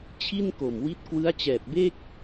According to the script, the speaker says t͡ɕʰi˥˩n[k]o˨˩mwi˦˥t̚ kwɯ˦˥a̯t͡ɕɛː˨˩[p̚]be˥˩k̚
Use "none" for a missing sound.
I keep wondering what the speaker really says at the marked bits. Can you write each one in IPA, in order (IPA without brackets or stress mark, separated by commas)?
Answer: k, p̚